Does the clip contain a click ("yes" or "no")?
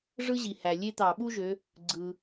yes